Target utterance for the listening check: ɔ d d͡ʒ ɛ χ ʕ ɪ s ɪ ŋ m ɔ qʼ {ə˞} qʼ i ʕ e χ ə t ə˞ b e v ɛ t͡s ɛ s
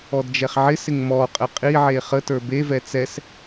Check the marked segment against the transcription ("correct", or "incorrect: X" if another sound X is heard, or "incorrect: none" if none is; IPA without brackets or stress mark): incorrect: ə